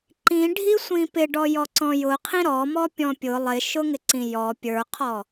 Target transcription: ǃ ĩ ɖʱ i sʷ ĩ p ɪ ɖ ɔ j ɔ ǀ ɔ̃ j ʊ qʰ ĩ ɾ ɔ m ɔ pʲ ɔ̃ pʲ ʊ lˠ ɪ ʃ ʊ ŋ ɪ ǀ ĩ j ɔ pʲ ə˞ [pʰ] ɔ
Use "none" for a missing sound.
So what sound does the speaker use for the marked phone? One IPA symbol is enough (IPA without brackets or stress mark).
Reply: qʰ